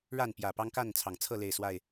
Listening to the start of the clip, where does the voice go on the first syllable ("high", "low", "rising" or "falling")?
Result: falling